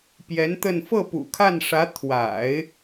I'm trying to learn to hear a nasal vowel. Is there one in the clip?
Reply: no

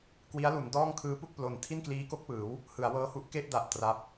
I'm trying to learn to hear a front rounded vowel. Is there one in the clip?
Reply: no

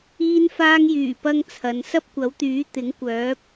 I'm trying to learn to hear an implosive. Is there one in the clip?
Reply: no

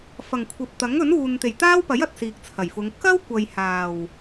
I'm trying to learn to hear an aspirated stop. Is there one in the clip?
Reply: yes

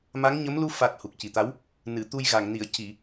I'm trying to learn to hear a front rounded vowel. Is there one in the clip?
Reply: no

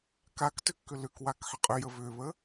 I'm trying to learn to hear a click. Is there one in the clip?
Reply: no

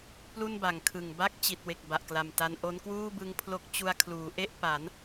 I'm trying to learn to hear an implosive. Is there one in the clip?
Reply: no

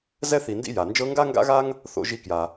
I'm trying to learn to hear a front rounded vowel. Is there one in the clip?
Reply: no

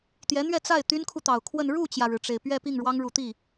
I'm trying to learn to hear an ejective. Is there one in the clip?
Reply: no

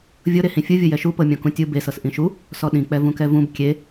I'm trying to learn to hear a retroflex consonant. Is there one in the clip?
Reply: no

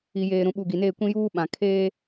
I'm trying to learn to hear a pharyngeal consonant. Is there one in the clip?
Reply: no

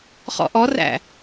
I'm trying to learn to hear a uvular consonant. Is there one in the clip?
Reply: yes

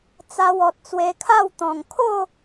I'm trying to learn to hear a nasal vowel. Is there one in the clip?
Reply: yes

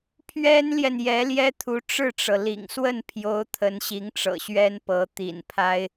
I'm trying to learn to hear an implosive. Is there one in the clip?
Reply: no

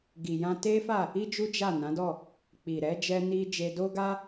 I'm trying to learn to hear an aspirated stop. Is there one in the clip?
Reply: no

